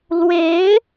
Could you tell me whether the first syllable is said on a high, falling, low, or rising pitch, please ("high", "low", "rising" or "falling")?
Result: rising